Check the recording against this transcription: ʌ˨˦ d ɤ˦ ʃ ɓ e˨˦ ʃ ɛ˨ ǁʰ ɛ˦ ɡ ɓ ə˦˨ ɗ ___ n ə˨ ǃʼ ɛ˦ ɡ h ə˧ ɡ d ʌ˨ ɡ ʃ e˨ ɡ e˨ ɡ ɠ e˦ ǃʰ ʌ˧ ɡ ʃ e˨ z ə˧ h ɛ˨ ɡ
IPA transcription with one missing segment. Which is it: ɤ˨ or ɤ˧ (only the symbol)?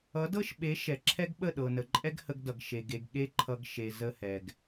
ɤ˨